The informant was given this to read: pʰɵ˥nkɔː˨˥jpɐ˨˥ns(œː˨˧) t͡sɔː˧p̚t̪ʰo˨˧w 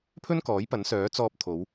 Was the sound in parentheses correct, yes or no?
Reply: no